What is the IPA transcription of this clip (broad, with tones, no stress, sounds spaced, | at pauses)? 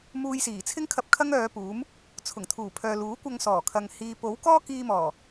m uː˧ j s iː˨˩ t͡sʰ ɪ˥ ŋ kʰ ɐ˧ p̚ kʰ ɐ˥ ŋ œː˨˧ p uː˨˥ m | t͡sʰ ʊ˨˩ ŋ t̪ʰ uː˨˩ pʰ œː˨ l uː˨˥ kʷ ɐ˧ ŋ s ɔː˨˩ kʰ ɐ˨ ŋ h iː˨ p o˨˥ w k ɔː˥ k iː˧ m ɔː˨˩